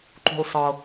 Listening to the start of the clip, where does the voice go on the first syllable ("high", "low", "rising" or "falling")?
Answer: low